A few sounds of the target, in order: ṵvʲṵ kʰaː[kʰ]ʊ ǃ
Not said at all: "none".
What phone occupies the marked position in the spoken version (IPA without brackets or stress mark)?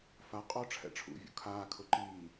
kʰ